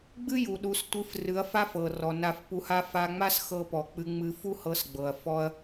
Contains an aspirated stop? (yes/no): no